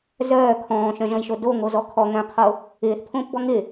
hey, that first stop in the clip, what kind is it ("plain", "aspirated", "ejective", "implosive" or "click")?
aspirated